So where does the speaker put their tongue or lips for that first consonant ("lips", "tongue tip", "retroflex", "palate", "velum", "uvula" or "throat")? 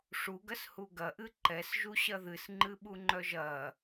retroflex